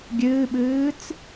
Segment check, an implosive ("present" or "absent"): present